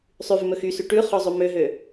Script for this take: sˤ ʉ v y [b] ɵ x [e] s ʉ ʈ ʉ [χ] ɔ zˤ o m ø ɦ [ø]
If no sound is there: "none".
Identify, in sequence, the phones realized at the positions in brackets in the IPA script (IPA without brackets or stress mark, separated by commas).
m, y, χ, ø